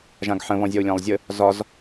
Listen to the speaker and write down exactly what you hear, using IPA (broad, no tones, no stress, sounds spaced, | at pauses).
ʒ ã ɡ ħ ə̃ β ɔ̃ zʲ ɒ u̯ lʲ ã lˠ zʲ ə | z ɒ z